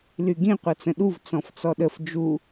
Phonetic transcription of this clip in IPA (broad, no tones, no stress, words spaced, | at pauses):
lyɡĩ qʷʌt͡sə̃ɗuv t͡sɔ̃ft͡sɔɗəf d͡ʒu